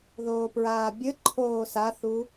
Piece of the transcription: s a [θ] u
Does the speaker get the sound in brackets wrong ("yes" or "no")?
no